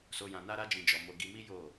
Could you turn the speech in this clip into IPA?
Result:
s o˧ j ã˧ n a˦ ɾ a˦ d͡ʒ ĩ˧ d͡ʒ ɔ˨ m o˧ ɡ i˧ m i˦ j o˦˨

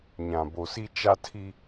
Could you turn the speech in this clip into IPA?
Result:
ɲ ã˨ b o˨ s i˦ t͡ʃ a˦ tʰ i˦

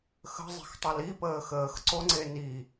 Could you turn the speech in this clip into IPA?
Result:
x ə̤ zˤ e̤ x tˤ ʌ l i p əː x əː x ǀ o ŋ͡ǀ e n i

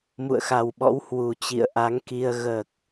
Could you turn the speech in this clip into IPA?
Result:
m ṵ˧˨ ə̯ x a˨˩ w ɓ ɔ̰˧˥ w h w u˨˩ t͡ɕ ḭ˧˨ ə̯ ʔ a˨˦ ŋ k i˧ ə̯ ɣ əː˨˩ k̚

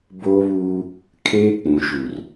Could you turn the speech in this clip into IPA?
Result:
b oː˦ β uː˦ | kʰ eː˦ k͡p ũ˨ ʃ u˨ r

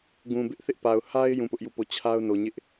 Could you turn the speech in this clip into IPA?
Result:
ɡ ũ˨ b ɪ˦ ʔ θ ɪ˦ ʔ p a˨ ʊ̯ h a˦ ɪ̯ j ũ˦˨ p ʊ˦ ʔ j u˦˨ p o˦˨ t͡ɕʰ a˦ ʊ̯ n o˨ ɲ ɪ˦ ʔ

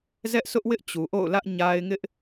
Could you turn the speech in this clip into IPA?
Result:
z ɛ˦ ʔ s ʊ˦ ʔ w ɪ˦ ʔ t͡ɕ u˨ ʔ o̰˦˨ ʊ̯ l ä˦ ʔ ɲ a˦ ɪ̯ ŋ ɪ˦ ʔ

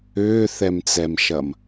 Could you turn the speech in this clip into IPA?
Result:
ʏː θ ɛ m t͡s ɛ m ʃ ɐ m

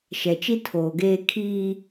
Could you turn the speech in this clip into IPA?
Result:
ʃ ɛ˨ t͡ʃ i˦ tʰ oː˨ ɡ eː˦ kʰ iː˦

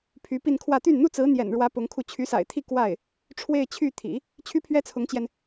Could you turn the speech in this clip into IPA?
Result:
pʰ y˧˥ p i˥˧ n kʰ w ä˥˧ t̪ y˥˩ n n̪ u˥ t͡s ɹ̩˧˥ n̪ j ɛ̰˨˩ n ɻ w ä˧˥ p ʊ˧˥ ŋ kʰ u˥˩ t͡ɕʰ y˧˥ s a̰˨˩ ɪ̯ t̪ʰ i˥˧ k w a˥˩ ɪ̯ | ʈ͡ʂʰ w e˥˧ ɪ̯ t͡ɕʰ y˥˩ t̪ʰ ḭ˨˩˦ | t͡ɕʰ y˥ pʰ ɥ ɛ˥ t͡sʰ ʊ˧˥ ŋ t͡ɕ j ɛ˧ n

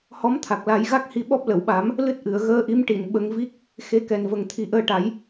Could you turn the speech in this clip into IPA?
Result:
h ɔ˧˥ m t̪ʰ a˨˩ k̚ l a˨˩˦ j ɣ a˦˥ k̚ h i˧ ɓ ɔ˦˥ p̚ l ə˨˩˨ w ɓ a˨˩˦ m | l ɨ˦˥ t̚ ʔ ɨ˨˩˨ ə̯ ɣ əː˧ ʔ i˧˥ m ʈ i˨˩˨ n ɓ ə˧ ŋ v i˦˥ k̚ | x e˧ k ɛ˨˩ n v ə˨˩ ŋ t̪ʰ i˨˩ ʔ əː˧ ʈ a˨˩˦ j

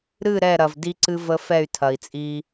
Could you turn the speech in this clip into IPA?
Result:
ɾ ɨ˦˨ ɾ ɛ˦˨ ɾ ɐ˨ v d i˦ ǀ ɨ˦ v ə˦ f ɛ˦˨ y̯ tʰ ɐ˨ i̯ t͡sʼ i˦

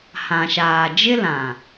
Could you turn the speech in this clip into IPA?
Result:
h ã˨ ʃ aː˨ d͡ʒ ɪ˦ l ã˨

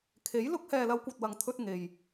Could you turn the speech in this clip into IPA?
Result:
kʰ e˨˥ j l ʊ˥ k̚ h ɛː˨ l ɐ˨˧ w kʷ ɐ˨ t̚ w ɐ˨ ŋ t̪ʰ ɵ˧ t̚ ŋ e˨ j

